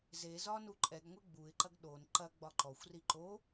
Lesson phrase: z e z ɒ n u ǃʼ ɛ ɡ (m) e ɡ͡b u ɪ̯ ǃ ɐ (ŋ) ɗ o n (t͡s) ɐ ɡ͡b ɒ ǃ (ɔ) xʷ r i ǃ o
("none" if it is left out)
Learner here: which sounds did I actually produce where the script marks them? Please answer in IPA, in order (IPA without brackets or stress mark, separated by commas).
ŋʷ, ɡ, ǃ, ɔ